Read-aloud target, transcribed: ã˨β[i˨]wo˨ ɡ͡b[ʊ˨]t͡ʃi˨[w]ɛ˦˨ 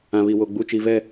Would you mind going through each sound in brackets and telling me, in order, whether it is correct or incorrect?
correct, incorrect, incorrect

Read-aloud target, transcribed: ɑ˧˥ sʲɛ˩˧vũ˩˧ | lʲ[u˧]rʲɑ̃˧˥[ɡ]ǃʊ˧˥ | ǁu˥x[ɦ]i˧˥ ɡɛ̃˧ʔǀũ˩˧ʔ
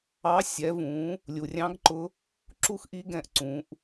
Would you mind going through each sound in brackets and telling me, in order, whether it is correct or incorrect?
incorrect, correct, incorrect

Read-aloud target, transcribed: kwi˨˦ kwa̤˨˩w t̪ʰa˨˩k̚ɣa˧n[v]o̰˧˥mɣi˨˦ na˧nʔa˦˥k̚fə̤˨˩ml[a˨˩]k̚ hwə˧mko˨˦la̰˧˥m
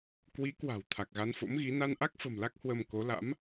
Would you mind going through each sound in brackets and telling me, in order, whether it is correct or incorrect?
incorrect, incorrect

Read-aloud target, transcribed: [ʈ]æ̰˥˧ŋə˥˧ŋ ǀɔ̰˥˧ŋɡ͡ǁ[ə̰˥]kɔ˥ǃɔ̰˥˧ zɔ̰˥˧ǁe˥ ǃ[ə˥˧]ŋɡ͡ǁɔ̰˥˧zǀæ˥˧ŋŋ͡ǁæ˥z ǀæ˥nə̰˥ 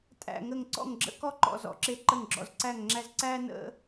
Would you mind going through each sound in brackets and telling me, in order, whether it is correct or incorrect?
incorrect, correct, correct

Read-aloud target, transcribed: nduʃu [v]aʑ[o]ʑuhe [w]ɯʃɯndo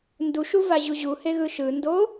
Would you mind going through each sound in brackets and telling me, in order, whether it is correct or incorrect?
correct, incorrect, incorrect

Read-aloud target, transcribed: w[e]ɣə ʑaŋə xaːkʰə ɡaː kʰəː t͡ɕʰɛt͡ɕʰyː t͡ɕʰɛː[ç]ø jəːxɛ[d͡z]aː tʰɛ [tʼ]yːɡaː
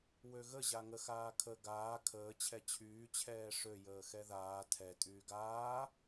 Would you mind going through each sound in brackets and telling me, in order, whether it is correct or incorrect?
incorrect, incorrect, incorrect, correct

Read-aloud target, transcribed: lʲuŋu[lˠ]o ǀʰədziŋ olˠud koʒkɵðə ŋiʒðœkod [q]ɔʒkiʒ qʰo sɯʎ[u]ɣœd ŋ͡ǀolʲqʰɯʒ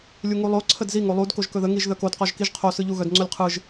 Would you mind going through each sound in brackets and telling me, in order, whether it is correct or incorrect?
correct, correct, correct

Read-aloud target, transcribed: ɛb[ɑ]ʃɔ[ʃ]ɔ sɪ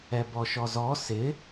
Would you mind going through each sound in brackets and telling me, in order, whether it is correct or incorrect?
incorrect, incorrect

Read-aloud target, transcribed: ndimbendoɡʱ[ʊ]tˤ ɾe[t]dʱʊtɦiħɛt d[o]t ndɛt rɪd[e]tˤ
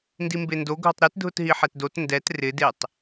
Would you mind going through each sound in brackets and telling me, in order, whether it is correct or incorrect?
correct, correct, correct, correct

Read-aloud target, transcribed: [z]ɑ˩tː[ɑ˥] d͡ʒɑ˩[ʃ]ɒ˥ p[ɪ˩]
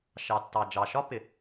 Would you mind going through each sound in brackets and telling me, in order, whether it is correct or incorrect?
incorrect, incorrect, correct, correct

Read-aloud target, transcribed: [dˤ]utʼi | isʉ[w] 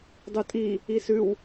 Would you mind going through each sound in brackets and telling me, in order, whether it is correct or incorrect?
correct, correct

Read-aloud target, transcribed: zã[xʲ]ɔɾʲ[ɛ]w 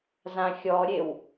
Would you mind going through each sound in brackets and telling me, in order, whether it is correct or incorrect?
correct, incorrect

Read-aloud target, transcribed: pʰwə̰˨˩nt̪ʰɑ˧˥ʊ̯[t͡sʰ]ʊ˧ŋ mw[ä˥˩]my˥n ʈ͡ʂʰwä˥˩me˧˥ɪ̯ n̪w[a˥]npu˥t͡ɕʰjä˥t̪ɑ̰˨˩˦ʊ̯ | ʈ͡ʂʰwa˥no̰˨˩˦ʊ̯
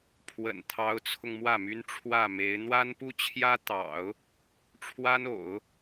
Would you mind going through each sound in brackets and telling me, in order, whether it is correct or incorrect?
correct, correct, correct

